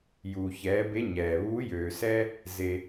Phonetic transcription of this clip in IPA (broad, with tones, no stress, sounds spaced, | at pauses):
j uː˩ ç ɛː˩˧ b e˧˥ ɲ ɛː˩ β uː˧˥ j øː˩ s ɛ˥ | z e˩